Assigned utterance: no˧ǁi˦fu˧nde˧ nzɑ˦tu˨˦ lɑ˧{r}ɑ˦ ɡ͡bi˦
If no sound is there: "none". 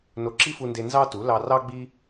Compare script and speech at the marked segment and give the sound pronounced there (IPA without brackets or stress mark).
r